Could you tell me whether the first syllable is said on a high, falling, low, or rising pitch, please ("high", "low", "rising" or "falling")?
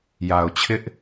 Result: low